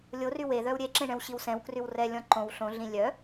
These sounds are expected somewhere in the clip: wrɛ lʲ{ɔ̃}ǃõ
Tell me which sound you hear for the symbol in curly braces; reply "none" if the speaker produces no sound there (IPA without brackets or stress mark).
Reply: ɔ̃